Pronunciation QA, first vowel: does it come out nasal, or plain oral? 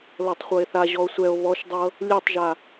oral